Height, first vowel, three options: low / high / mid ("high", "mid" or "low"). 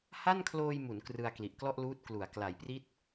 low